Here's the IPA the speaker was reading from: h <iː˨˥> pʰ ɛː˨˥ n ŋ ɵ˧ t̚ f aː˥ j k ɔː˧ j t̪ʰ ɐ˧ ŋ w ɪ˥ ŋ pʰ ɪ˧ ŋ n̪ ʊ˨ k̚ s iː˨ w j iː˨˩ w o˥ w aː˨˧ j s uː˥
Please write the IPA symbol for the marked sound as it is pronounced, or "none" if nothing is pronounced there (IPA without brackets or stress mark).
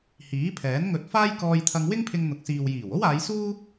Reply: iː˨˥